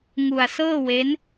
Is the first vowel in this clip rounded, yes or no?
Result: yes